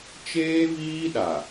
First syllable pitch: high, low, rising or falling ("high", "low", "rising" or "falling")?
high